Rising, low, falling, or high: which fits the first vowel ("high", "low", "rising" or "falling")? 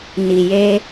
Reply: low